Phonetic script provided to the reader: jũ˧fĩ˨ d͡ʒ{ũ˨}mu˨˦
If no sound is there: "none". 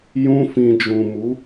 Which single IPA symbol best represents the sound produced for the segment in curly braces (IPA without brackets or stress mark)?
ũ˨